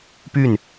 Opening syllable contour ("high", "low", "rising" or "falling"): falling